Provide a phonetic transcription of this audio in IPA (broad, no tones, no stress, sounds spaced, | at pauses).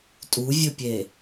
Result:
tʼ u vʲ ɵ pʲ e